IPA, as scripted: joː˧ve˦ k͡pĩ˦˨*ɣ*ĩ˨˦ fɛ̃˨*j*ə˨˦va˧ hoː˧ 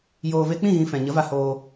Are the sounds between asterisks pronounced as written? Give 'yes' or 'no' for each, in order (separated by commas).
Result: yes, no